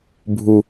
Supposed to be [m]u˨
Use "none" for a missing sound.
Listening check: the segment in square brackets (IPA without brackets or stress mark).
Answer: bʱ